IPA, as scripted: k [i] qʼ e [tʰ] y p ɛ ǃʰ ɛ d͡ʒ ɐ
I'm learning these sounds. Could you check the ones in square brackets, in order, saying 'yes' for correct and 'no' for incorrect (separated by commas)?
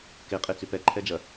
no, no